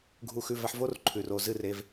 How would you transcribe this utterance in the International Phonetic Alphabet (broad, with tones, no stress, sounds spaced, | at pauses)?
ɡʱ u˨ x ʉ˨ v a˧ ħ v o˦ r ǃʰ ʉ˨ r o˦˨ z ɨ˦˨ r e˧ v